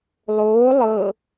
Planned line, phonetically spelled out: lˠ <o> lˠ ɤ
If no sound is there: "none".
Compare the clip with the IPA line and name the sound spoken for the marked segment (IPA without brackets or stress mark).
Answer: oː